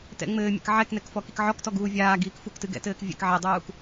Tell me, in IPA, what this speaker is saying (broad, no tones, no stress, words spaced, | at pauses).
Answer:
tɛ̰ ŋ͡mɘːmʲɛ̰k ʕɛknɛkfɔ kikʕɔktɔ ɡuːvʲaː ɡiːkfuk tɨɡɛ̰tɘːkvʲɛ̰k ʕedˤuːk